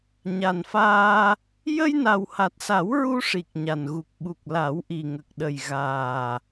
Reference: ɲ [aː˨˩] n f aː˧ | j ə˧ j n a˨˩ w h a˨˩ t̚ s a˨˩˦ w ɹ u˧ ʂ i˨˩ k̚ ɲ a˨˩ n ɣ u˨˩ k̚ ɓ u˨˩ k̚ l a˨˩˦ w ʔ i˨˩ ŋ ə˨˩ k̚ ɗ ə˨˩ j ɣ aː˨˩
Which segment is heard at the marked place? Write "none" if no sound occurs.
a˨˩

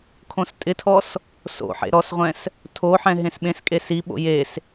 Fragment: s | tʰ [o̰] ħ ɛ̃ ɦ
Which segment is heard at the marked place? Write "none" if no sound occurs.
o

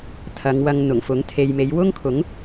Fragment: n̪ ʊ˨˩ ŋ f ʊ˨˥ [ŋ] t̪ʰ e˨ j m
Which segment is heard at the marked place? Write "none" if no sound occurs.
ŋ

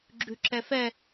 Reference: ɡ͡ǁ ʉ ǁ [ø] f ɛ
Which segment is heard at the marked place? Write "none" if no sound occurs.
ɛ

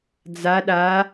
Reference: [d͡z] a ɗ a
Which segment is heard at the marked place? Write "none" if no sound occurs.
d͡z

